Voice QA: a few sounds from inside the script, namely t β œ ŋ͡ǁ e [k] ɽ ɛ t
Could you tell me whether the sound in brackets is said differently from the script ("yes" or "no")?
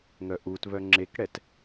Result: no